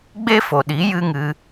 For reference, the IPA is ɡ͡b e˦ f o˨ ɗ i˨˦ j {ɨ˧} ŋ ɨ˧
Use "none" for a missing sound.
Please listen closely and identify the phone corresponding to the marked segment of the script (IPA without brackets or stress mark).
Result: ɨ˦